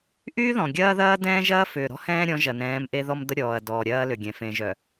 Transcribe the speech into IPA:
ʔyː˦ðɔ̃˨ɡʲɐː˦ ðɐː˦dɛ̃ː˦ʒɐː˦ fʏː˨ɾɔ̤˦hɛ̃ː˦ɾʲɔ̃˨˦ ʒɐ˨nɛ̃ː˨˦m ʔe˦ðɔ˦md̪ə˦ ɾʲɔː˨ɐ̯dɔː˨ɾʲɐː˦ lʏ˨ɡʲɛ̃˨ fẽ˨ʒœ˨

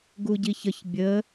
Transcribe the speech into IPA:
ɡuɟiçəç bʲə

